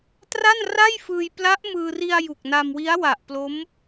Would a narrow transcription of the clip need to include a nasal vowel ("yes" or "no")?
no